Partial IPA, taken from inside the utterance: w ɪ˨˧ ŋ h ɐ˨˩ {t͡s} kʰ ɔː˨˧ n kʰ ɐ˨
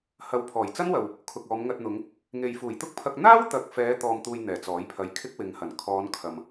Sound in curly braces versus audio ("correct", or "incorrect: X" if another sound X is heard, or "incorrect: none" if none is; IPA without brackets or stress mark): incorrect: n